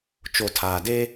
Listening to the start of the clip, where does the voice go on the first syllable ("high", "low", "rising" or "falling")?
low